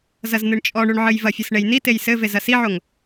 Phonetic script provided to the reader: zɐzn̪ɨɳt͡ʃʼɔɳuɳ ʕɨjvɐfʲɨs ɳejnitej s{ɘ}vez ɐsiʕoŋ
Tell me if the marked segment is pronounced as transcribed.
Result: yes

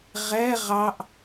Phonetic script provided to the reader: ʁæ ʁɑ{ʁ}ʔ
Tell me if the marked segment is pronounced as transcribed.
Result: no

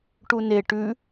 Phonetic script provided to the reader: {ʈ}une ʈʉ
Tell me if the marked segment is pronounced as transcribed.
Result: yes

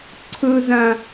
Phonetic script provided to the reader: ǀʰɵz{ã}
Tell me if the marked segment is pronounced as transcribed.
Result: yes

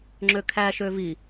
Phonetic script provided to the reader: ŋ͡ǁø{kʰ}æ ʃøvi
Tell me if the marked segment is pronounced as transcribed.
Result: yes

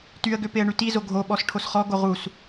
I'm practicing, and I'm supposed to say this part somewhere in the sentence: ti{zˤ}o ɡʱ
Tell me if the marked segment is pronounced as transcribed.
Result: no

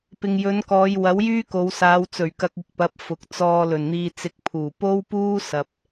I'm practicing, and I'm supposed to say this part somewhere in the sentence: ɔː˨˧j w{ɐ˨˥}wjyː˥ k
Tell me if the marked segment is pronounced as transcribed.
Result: yes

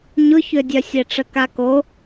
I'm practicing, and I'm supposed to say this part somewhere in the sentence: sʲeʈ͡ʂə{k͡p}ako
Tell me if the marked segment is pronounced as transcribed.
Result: no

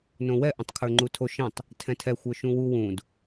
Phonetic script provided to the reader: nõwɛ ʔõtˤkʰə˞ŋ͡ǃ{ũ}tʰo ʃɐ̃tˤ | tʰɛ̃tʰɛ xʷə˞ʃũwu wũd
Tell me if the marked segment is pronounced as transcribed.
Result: no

